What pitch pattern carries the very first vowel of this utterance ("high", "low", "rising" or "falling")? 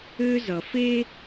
high